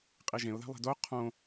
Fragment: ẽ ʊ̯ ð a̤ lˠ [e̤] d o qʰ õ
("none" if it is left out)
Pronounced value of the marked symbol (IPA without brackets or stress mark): e̤